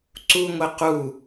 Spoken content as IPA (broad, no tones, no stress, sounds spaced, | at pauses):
ǀ u ŋʷ e q u